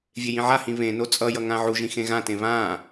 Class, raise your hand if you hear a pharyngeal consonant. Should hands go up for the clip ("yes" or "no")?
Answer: yes